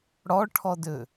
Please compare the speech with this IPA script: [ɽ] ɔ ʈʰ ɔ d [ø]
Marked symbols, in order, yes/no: yes, yes

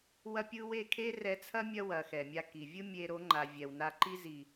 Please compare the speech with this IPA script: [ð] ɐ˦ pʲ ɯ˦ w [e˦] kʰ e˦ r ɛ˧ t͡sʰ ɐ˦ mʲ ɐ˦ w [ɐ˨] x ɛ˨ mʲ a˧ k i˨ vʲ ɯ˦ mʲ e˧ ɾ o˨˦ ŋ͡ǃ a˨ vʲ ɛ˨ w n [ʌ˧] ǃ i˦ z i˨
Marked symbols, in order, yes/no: no, no, yes, no

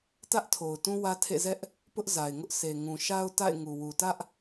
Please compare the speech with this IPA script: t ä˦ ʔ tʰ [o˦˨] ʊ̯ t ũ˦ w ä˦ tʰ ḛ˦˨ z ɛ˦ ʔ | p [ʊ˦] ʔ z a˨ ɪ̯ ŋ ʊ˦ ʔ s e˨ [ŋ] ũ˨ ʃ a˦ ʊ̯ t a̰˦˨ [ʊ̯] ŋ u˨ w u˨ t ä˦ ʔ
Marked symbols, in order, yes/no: no, yes, yes, no

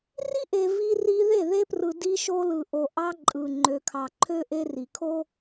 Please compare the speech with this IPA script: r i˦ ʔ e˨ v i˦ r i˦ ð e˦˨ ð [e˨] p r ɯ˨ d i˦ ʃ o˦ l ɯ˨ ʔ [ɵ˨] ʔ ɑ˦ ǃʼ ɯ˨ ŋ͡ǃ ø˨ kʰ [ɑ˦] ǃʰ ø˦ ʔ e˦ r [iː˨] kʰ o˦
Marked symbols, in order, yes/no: no, no, no, no

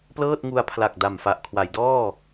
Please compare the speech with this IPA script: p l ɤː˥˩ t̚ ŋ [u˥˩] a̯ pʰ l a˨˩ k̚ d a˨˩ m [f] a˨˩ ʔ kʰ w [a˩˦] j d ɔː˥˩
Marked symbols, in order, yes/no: no, yes, yes

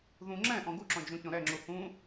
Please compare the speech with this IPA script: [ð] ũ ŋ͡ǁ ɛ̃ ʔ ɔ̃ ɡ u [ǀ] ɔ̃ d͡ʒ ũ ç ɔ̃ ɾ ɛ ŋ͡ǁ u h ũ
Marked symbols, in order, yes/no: yes, no

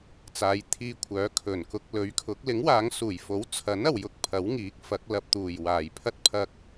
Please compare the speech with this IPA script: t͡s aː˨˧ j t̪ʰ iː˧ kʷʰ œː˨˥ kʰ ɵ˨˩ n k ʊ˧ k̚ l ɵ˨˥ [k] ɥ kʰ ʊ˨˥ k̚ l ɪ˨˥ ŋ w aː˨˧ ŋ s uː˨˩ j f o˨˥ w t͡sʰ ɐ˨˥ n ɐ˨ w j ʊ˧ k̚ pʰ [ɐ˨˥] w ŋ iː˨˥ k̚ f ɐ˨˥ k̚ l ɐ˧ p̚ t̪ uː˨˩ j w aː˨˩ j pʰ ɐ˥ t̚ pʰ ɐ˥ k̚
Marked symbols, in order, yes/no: no, yes

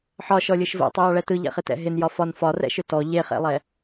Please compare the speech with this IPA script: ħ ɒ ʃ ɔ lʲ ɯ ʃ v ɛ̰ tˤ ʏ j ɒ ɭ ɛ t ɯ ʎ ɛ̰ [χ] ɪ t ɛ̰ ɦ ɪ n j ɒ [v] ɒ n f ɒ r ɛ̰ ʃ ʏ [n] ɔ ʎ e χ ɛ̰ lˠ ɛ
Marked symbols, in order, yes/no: yes, no, no

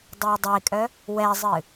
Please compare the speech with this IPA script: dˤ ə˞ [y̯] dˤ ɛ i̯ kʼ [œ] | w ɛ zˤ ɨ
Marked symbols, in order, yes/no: no, yes

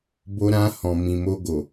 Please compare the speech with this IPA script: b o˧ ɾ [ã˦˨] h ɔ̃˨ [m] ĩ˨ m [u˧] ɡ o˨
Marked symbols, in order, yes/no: no, yes, no

